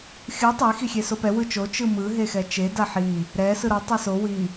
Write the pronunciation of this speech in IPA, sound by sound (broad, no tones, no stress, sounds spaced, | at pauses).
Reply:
xʲ ɯ tˤ e x i xʲ e s o p ɛ w ɯ t͡ʃ o t͡ʃ ɯ m ɯ ɦ e x ɛ t͡ʃ e d a ħ i | ɾ ɛ s ɯ ɾ ʌ tˤ e s o w i